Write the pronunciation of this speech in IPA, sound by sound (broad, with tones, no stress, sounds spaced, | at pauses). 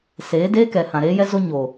s eː˨˦ d eː˦ k ɛ˨ h ã˨ ɾ eː˦ j ɛ˦ z o˦ ɲ oː˨